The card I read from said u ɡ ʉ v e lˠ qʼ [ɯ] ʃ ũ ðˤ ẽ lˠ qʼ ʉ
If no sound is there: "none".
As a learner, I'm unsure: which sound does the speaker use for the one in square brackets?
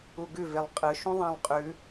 ɯ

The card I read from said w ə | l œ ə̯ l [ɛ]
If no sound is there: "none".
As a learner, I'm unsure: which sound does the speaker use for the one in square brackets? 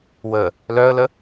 ə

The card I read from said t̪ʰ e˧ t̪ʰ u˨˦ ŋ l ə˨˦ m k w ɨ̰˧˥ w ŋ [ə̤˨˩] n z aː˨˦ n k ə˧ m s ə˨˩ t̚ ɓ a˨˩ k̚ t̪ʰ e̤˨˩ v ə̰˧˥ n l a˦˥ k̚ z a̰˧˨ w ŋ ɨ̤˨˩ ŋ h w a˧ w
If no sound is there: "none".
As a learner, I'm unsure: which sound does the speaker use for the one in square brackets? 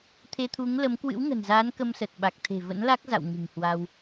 ə̤˨˩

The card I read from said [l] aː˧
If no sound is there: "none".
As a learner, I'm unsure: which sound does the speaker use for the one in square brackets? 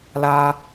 l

